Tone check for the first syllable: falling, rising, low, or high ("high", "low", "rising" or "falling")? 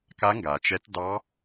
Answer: rising